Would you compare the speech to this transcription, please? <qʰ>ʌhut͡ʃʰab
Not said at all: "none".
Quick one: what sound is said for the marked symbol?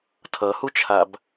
tʰ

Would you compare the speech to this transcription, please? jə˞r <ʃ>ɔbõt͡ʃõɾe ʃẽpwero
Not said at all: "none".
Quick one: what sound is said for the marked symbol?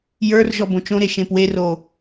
ʒ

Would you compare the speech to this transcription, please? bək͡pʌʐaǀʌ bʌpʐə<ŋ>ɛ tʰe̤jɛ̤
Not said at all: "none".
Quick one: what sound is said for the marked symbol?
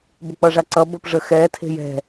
x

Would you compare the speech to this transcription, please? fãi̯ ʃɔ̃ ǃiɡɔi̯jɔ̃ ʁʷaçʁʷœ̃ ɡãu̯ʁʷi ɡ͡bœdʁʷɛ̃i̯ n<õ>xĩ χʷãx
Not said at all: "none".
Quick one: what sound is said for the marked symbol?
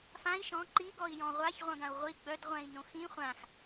õ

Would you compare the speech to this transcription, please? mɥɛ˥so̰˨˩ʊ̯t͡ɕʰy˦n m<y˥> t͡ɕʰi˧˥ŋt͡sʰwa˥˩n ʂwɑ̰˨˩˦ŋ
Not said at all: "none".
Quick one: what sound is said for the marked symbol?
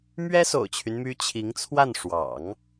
y˥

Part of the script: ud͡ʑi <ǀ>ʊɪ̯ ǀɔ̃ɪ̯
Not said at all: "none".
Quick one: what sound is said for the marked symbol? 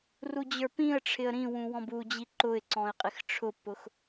ǃ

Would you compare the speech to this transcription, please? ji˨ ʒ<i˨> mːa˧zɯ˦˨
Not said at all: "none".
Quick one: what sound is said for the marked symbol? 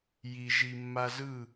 i˨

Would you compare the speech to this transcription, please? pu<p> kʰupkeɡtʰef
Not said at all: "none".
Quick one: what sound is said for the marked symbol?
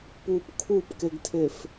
p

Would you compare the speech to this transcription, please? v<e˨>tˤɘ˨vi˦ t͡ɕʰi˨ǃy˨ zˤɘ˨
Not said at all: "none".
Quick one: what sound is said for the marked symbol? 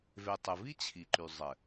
e˨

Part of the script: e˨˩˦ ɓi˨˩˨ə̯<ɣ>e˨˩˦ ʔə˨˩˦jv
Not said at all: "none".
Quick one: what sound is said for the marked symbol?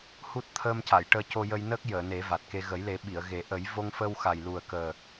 ɣ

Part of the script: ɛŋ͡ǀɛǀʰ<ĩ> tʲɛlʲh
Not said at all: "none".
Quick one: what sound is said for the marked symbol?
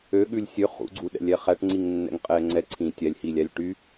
ĩ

